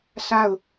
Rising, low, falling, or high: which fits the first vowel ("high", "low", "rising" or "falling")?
falling